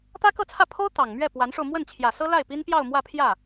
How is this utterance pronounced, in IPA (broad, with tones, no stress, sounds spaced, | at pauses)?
t̪ ä˥ k ɤ˥˧ t͡sʰ ä˥˩ pʰ o˥ ʊ̯ t̪ ɑ˨˩ ŋ m ɥ ɛ˥˩ p w a˧˥ n ʂ o˧ ʊ̯ m w ə˥˩ n t͡ɕʰ j ä˨˩ s ɤ˥ l a˥˩ ɪ̯ p i˥ n p j ɑ˥˧ ʊ̯ m w ä˥˧ pʰ j ä˥˩